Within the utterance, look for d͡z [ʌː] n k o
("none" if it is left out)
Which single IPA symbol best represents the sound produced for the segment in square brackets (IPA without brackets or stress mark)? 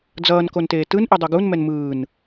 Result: ʌː